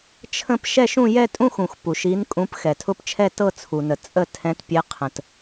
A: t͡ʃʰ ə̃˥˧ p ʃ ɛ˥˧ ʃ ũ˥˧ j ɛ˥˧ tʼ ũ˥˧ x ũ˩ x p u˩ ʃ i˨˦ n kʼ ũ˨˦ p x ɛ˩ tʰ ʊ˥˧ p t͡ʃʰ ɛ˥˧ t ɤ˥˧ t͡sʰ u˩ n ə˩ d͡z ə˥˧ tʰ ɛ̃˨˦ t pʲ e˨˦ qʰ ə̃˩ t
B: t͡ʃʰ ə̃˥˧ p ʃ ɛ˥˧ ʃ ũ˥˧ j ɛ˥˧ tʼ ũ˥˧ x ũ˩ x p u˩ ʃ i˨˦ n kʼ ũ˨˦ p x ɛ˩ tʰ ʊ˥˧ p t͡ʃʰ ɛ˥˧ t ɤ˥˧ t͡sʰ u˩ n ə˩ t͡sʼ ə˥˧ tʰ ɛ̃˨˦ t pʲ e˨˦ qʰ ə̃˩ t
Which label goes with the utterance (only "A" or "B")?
B